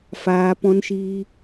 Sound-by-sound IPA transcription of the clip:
f aː˧ p ɔ̃˦ n ʃ iː˦

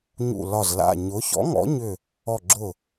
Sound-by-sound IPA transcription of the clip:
ɲ ṵ˧˩ l ɒ˧˩ z l a̰˧˩ ɲ ʊ˨˥ ç ɔ̰˨˥ ŋ ɔ̰˨˥ ɲ ʏ˧˩ | ɔ˧˩ ɡ͡ǁ ʊ˧˩

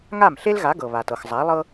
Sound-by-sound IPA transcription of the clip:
ŋ a˥˩ m ɬ e˥ l ɣ a˩˥ ɡ ɤ˩ β a˩ t ɤ˩ x zˤ a˩˥ lˠ ɤ˥

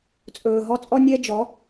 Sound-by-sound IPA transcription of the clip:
t͡sʼ ɵː˨ ɦ ɔ˥˨ t͡sʼ ɔ˥ nʲ ɛ˥ d͡ʒ ɔ˩˥

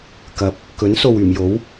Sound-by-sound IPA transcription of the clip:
k ɐ˨˥ p̚ | k ɵ˨˥ n s o˨ w yː˨˩ m j o˨˥ w

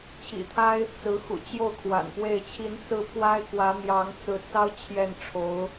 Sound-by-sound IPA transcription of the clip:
t͡ɕʰ ḭ˨˩ t̪ʰ a˥ ɪ̯ | t͡s ɹ̩˧˥ x ṵ˨˩ t͡ɕ j o˥˩ ʊ̯ kʰ w a̰˨˩ n p w e˥˩ ɪ̯ t͡ɕʰ i˧˥ n s ɹ̩˥˩ pʰ w a˥ ɪ̯ k w ä˧˥ n̪ j ɑ˧˥ ŋ t͡s ɹ̩˧˥ t͡s ɑ˥ ʊ̯ t͡ɕʰ j ɛ˥˩ n ʈ͡ʂʰ o˧˥ ʊ̯

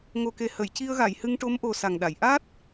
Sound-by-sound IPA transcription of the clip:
ŋ o˨˩ k e˨˩ h ə˨˩˨ j c i˧ ə̯ ɣ a˨˩˨ j h ɨ˧ ŋ ʈ o˧˥ m ʔ o˨˩ s a˨˩ ŋ ɗ a˨˩˨ j ʔ a˦˥ t̚

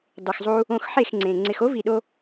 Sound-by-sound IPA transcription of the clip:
dˤ ɨ˨ x zˤ u˧ | õ˧ x ħ e˦˨ x ŋ͡ǀ ẽ˨ ŋ͡ǀ ɪ˨ x o˦ v i˨ ɗ o˧

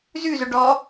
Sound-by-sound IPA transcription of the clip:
z ʉ z ʊ ɖ ɔ

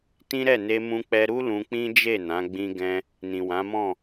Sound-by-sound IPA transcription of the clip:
t ĩ˦ ɾ ɛ˦˨ n e˧ m ũ˧ k͡p ɛ˧ ɾ u˦ l ũ˧ k͡p ĩ˦ d͡ʒ e˦˨ n ã˨˦ ɡ͡b ĩ˦ ɡ ɛ̃˦ | n ĩ˨ w ã˨˦ m ɔ̃˦˨

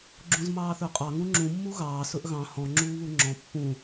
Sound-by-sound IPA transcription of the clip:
ɡ͡ǁ ũ z m ɑː θ ø qʼ ɑ ŋ ũ ŋ͡ǁ ũ mː u ɣ ɑː s ɵ ʔ ɣ ɑ̃ h ɔ̃ ŋ͡ǁ uː β u ŋ͡ǁ ɔ̃ pː ũ

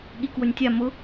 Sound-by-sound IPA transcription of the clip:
ɠ i k w ʊ nʲ tʲ a m ʊ

